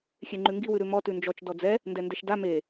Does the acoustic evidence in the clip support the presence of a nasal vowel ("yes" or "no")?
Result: no